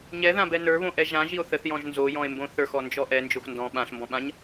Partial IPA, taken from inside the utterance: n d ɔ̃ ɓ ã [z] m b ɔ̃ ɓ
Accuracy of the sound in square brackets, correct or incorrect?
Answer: incorrect